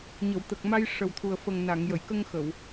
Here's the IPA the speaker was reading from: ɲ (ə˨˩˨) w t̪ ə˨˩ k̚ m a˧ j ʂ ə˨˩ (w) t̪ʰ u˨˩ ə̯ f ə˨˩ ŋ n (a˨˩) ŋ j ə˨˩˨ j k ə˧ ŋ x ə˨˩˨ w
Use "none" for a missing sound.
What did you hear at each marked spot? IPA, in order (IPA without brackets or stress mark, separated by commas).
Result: ə˨˩˨, w, a˨˩˨